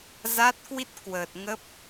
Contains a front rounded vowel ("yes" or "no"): no